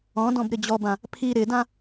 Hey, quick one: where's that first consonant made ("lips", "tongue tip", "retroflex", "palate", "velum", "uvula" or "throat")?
tongue tip